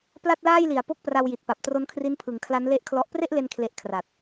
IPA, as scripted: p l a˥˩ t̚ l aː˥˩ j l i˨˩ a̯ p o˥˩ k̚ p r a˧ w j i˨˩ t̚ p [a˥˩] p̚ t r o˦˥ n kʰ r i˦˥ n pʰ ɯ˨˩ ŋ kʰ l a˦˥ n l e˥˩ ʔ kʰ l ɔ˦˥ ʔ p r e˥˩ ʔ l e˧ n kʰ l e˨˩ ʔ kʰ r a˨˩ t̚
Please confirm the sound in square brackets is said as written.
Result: no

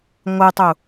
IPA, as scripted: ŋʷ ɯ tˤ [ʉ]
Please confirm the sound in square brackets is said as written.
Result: no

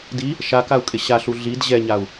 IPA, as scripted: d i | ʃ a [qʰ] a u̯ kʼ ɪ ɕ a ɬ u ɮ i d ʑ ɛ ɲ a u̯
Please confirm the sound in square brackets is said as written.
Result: no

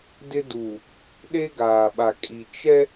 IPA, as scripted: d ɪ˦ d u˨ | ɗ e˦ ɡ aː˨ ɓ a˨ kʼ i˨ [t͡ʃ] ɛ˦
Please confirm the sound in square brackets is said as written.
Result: yes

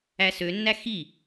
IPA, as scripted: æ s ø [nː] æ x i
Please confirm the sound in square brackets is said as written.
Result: yes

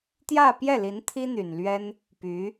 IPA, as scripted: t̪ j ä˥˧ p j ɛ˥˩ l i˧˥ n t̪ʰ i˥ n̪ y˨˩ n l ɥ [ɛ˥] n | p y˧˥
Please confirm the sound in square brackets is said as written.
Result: yes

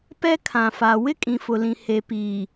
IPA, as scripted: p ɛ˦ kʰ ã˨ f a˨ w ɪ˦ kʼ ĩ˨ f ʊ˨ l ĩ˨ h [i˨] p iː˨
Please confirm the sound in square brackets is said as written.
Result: no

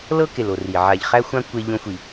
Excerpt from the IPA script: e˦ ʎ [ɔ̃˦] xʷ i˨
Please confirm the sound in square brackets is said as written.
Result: no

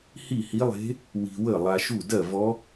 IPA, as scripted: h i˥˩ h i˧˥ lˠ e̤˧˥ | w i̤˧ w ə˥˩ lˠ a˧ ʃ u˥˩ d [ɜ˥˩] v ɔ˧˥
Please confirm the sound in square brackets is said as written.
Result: yes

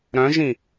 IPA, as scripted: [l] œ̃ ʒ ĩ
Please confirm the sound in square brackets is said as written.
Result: no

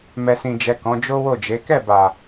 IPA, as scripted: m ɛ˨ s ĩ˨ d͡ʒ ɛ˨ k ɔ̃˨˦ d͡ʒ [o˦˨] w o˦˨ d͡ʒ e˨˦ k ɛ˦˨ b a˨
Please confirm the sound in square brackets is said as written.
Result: no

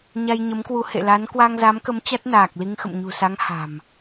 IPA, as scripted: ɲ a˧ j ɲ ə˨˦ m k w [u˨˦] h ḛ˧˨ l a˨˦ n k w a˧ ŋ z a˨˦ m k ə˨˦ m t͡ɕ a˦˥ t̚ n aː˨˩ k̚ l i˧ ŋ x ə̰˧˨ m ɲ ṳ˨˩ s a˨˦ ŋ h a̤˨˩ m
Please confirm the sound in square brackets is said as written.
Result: yes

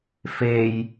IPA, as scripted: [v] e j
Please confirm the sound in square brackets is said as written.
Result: no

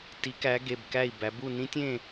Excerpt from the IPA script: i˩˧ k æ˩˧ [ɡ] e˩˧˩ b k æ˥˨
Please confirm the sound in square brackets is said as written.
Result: yes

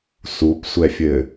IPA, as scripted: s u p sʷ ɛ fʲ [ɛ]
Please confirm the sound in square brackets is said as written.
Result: no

